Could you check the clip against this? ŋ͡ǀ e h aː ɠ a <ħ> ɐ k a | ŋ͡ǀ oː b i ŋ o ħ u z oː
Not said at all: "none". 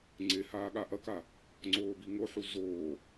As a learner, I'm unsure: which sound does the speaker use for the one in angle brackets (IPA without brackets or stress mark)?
ʔ